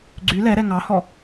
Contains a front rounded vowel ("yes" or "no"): yes